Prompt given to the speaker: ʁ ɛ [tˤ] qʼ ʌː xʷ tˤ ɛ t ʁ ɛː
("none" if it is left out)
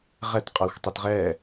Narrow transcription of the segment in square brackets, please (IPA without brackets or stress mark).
t